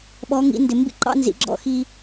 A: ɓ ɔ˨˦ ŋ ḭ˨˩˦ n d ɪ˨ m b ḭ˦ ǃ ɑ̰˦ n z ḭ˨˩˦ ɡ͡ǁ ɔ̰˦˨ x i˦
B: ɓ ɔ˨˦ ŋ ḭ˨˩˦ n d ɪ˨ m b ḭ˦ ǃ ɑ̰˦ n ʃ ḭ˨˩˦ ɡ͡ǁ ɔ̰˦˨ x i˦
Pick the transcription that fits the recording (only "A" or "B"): A